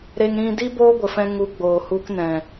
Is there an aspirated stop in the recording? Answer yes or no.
no